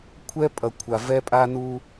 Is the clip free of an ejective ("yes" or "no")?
no